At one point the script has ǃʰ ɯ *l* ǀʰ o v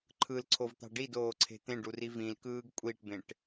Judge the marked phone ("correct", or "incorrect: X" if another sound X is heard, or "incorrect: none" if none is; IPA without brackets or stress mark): correct